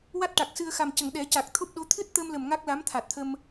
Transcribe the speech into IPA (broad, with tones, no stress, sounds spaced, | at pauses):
w a˦˥ t̚ ʈ a˨˩ k̚ s ɨ˧ ə̯ x a˨˩ m c ə˨˩˨ ŋ ɗ ɛ˨˩˦ c a˨˩ k̚ t̪ʰ o˦˥ p̚ ɗ o˧˥ t̪ʰ ɨ˦˥ t̚ t̪ ə˧ m l ə˨˩ m ŋ a˦˥ k̚ l a˧˥ m t̪ʰ a˨˩ t̚ t̪ʰ ə˧ m